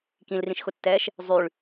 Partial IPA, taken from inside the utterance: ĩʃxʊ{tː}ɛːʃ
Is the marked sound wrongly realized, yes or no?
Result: no